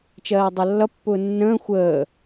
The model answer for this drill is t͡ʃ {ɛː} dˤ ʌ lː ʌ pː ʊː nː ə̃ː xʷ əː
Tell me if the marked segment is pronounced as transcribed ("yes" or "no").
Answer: no